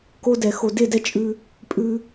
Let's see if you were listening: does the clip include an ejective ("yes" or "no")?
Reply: yes